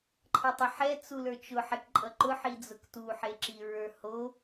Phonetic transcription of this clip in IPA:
ǃʰ ʌ tˤ ə ħ ɛ t͡s u l ə˞ t͡ʃ ʊ ħ ɛ k ǃʼ ʌ ǃ ʊ ħ i d͡z ʊ k t u ħ e ǁ i ɹ ə˞ h o

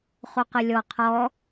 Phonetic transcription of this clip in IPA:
χ o q ə lʲ ɔ qʰ ɔ

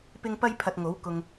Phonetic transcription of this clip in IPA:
p ɪ˥ ŋ p ɐ˥ j pʰ ɐ˧ t̚ ŋ o˨˥ w k ʊ˨ ŋ

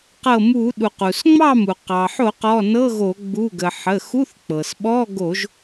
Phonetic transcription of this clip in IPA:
q ɤ˧˩ m u˧˩˧ ɗ u˩ q u˩ s ŋ͡m ɑ˥˨ m u˩ q ɑ˩ ħ o˧˩˧ q ɔ˩˧˩ n ɤ˧˥˧ ɣ o˧˩˧ ɡ͡b u˩˧˩ ɡ ə˩ ħ ə˩˧˩ x u˧˥˧ θ k͡p ɤ˩ s ɓ ɔ˧˥˧ ɡ o˧˩˧ ʒ

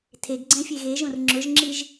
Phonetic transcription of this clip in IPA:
tʰ e ɡ ɡ͡ǀ ɛ̃ fʲ e ɣ e ʒ õ r ŋ͡ǁ ʊ ʒ ŋ͡ǁ i ʒ

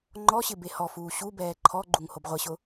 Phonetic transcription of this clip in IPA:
ŋ͡ǃ ɔ ɕ ɪ b e h ɔ f uː ɕ u b ɛː ǃʰ ɔ ɡ͡ǃ u ŋ h o b ʁʷ ɪ ɕ ʊ

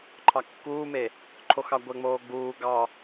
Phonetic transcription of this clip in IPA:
ǃʰ ɑ kː uː m e | ǃʰ o x ɑ ɡʷ ɛ ŋ͡m oː ɡ͡b uː ɡ ɑ

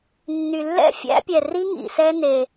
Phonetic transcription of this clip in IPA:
nː y˨ lː ɛ̰˦˨ fʲ æ̰˦ pʲ ɛ˨ r i˦ ŋ ḭ˨ s ɛ˦ n e˦

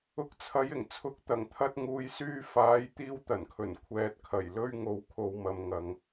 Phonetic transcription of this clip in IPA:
ʊ˨ k̚ t͡sʰ ɐ˨˧ j ɪ˨˩ ŋ t͡sʰ ʊ˨˥ k̚ t̪ ɐ˨˩ ŋ t̪ʰ ɐ˧ t̚ ŋ uː˨ j s yː˧ f aː˨˧ j t̪ iː˧ w t̪ ɐ˨˩ n kʰ ɵ˨˩ n kʷʰ ɛː˨ t̚ kʰ ɐ˨˩ j l ɵ˧ ɥ ŋ o˨ w kʰ o˨ w m ɐ˨ m ŋ ɐ˨ ŋ

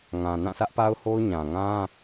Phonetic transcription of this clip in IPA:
ŋ ã˨ n ã˦˨ sʰ ä˦ ʔ p a˦ ʊ̯ h o˦ ʊ̯ ɲ ã˨ ŋ ã˦

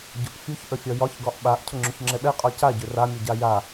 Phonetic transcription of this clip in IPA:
ɟ ʊ ʔ fʲ u ç ʔ ə fʲ ɒ j ɒ ç ɡ ɒ ʔ ɓ a ʔ cʰ ʊ ŋ͡ǁ ʏ ç ŋ͡ǁ ɛ ɓ ɛ qʼ ɒ c a ɟ ʏ r a mʲ ʊ ɟ a j a

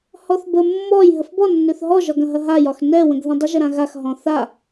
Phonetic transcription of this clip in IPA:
h ɔ θ b ə mː ɔ j ɦ ə f b ɔ nː ø θ ɦ ɔ ʒ ɒ ɡ ɐ̃ ɦ ɐ ɦ a j ɒ x n ɛ w ə̃ ɡ ð ɐ̃ dˤ ə ʒ ə ɾ ã ɣ a x ɦ ɔ̃ θ a

